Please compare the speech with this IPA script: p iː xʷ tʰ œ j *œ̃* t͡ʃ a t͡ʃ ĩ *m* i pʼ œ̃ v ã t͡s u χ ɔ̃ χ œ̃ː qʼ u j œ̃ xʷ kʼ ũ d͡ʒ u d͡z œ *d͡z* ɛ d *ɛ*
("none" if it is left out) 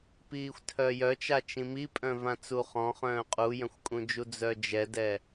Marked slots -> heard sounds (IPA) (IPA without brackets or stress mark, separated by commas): œ, m, d͡ʒ, ɛ